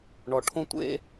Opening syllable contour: low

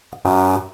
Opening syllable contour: low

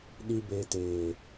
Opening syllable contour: low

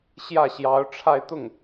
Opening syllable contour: falling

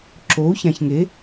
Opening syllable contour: rising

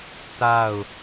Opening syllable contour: falling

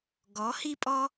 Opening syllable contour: rising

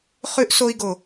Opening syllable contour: high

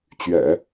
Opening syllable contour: low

